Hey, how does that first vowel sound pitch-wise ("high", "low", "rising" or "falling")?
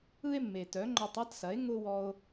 high